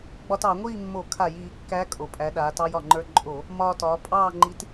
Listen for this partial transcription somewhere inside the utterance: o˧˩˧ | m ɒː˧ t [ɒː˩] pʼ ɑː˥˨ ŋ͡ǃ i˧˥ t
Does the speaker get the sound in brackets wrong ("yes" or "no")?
yes